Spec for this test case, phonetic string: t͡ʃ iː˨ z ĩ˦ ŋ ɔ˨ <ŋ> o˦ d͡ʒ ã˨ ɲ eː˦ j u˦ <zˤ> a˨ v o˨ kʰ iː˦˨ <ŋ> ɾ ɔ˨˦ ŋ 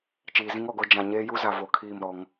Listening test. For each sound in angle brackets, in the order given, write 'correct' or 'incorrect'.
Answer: incorrect: ɡ, incorrect: z, incorrect: m

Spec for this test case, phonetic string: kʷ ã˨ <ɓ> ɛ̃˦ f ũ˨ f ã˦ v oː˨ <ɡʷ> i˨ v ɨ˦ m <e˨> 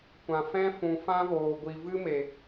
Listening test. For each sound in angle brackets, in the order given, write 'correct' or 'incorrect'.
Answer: incorrect: f, correct, correct

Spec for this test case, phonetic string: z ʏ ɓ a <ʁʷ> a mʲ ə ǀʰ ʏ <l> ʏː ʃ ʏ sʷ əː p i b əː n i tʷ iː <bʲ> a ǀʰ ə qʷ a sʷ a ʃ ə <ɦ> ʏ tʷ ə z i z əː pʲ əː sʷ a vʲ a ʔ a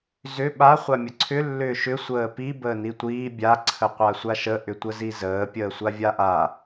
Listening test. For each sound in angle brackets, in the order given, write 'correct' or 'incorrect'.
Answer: incorrect: χʷ, incorrect: lː, correct, incorrect: ʔ

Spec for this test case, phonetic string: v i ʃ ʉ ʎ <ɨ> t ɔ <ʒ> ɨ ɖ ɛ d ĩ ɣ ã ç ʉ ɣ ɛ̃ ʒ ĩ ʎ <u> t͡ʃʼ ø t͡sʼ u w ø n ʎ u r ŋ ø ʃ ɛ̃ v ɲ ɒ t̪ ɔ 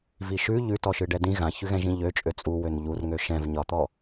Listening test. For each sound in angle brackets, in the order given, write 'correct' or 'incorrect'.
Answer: incorrect: ʉ, incorrect: ʃ, incorrect: ø

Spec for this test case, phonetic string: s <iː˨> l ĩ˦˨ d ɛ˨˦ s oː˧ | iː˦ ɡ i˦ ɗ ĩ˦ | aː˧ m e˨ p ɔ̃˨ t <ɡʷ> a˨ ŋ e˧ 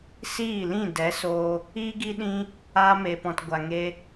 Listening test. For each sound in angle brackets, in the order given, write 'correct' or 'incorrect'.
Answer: incorrect: iː˦˨, correct

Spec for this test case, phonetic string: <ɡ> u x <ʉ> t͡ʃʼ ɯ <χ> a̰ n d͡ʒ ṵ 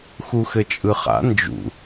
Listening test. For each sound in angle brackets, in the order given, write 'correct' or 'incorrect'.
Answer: incorrect: x, incorrect: ɘ, correct

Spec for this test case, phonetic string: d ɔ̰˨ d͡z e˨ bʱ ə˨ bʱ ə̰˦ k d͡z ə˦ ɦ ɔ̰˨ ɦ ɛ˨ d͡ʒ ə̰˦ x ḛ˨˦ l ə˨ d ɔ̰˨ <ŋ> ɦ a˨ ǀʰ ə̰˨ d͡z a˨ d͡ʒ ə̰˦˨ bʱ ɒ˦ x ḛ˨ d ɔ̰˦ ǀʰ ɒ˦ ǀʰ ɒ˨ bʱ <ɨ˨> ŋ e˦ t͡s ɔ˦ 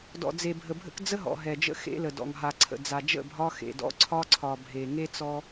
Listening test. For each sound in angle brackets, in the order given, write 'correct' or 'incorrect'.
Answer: correct, incorrect: e˨

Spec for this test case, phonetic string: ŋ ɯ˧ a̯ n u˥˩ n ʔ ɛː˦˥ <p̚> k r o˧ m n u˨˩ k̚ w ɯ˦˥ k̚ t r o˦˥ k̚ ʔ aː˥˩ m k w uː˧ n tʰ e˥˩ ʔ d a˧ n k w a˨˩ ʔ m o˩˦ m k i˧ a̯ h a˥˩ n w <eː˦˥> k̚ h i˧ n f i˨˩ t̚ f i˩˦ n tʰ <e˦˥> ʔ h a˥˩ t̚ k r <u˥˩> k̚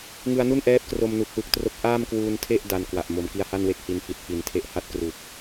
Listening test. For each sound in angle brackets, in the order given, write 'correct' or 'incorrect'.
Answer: correct, incorrect: e˦˥, correct, incorrect: u˨˩

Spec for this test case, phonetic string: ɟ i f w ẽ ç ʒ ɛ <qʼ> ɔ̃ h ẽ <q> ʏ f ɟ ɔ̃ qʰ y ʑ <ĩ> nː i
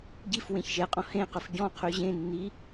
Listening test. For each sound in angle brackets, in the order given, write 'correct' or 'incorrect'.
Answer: correct, correct, incorrect: ẽ

